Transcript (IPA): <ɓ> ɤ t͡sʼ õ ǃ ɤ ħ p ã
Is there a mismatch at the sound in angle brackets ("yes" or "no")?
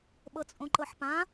no